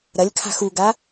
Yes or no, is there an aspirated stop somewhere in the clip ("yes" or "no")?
yes